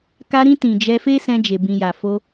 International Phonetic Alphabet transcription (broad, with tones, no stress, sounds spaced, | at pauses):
k a˧ ɾ ĩ˧ t ĩ˨ d͡ʒ ɛ˧ f e˦ s ɛ̃˧ d͡ʒ e˨ b ĩ˨ j a˨ f o˧